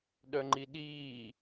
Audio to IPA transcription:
ɗ œ ŋ͡ǃ i ɗ iː

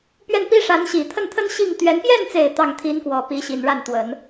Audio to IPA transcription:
p ɥ ɛ˥˩ n p i˥ ʂ a˧˥ n ɕ i˨˩ t̪ʰ ə˥˩ n t̪ʰ ə˥ n ɕ i˥˩ ŋ t̪ ɥ ɛ˧˥ n p j ɛ˥˩ n t͡s e˨˩ ɪ̯ t̪ ɑ˥˩ ŋ t̪ʰ i˧˥ n k w ɔ˨˩ p i˧˥ ɕ i˨˩ n ɻ a˥˩ n t̪ w ə˨˩˦ n

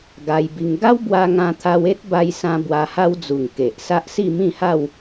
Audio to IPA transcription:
ɡ a˧ j b i˧ ŋ ɡ a˦ w b w a˧ ŋ ã˧ t̪ʰ a˧ w e˦ t̚ b a˧ j s ã˧ b w a˧ h a˦ w d͡z u˨˩ ŋ k e˨ ʔ s a˦ ʔ s i˥˧ m ĩ˥˧ h a˥˧ w

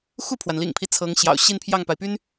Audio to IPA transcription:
x u˥˩ pʰ w a˩ n l ḭ˨˩ ŋ pʰ i˦ t͡sʰ ɤ˧˥ ŋ ɕ j ɑ̰˨˩ ʊ̯ ɕ i˥˧ n pʰ j ɑ˥˩ ŋ p a˩ ɪ̯ p y˥ n

